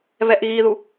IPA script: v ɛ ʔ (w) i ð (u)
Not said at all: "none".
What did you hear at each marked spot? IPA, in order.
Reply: ɣ, u

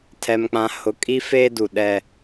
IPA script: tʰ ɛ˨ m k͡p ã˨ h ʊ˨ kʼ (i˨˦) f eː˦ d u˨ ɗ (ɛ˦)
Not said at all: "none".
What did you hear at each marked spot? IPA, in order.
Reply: i˦, ɛ˦

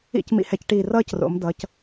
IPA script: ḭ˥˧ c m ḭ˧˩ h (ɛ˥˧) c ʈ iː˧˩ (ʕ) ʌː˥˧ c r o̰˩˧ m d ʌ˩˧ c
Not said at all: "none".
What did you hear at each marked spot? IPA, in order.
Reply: ɛ˧, r

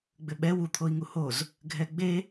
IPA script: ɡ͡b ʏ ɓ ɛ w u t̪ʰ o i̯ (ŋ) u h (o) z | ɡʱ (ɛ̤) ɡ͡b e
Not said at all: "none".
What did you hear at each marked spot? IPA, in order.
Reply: ŋ, o, ɛ

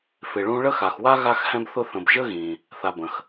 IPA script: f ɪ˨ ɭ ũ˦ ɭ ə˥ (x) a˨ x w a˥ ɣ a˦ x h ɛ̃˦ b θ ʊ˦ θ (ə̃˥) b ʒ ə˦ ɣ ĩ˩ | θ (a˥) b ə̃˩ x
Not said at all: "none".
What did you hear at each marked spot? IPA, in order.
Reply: x, ə̃˨, a˨

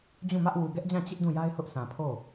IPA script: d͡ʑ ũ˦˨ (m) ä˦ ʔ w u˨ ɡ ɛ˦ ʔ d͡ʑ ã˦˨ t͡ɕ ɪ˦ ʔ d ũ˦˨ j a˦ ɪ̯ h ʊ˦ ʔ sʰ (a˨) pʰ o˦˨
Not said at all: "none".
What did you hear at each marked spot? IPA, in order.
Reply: m, ã˨

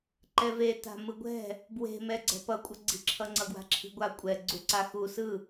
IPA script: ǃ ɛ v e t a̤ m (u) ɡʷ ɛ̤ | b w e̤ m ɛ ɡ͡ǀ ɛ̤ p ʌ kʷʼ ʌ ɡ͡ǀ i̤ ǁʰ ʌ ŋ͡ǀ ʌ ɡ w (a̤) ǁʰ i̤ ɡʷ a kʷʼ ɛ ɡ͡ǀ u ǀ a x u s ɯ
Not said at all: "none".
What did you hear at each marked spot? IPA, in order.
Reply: ɯ, a̤

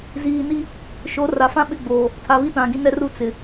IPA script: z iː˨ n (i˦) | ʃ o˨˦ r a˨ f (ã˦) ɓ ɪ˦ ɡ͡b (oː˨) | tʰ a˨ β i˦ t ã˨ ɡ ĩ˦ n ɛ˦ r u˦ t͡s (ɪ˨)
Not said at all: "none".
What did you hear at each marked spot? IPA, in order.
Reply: i˦, ã˦, oː˨, ɪ˨

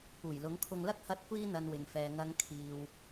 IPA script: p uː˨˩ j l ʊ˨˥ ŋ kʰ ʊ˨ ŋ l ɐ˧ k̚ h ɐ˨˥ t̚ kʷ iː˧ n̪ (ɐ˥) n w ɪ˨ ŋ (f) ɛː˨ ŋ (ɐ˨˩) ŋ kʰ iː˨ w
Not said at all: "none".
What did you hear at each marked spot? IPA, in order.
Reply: ɐ˨, f, ɐ˨˧

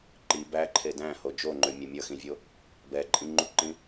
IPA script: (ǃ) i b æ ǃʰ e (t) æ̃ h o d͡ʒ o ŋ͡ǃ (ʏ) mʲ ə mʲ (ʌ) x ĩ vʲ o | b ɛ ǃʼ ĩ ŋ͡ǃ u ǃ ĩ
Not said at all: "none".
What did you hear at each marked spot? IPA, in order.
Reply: ǃ, d, ʏ, ʌ

